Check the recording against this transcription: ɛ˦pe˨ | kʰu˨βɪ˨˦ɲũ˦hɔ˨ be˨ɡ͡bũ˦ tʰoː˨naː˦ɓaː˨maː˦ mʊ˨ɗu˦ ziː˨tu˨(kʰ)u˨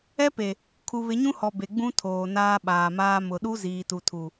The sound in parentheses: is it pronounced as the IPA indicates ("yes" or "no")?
no